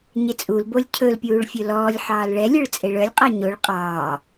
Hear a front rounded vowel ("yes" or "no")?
yes